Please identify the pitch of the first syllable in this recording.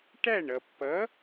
falling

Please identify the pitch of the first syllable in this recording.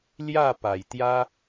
falling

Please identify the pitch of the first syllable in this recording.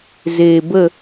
low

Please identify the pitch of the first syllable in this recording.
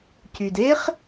low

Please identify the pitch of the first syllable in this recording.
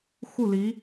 falling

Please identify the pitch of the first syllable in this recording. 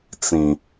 low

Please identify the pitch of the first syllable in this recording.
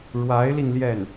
rising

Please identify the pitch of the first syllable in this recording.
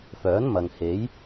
rising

